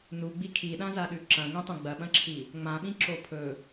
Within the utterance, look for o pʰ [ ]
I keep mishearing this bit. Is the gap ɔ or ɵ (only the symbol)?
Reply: ɵ